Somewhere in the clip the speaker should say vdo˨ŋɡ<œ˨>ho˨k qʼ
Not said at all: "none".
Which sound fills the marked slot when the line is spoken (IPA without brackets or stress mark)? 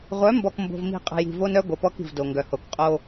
œ˨